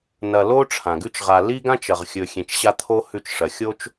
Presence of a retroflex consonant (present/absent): present